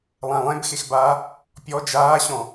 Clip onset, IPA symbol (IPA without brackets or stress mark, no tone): lˠ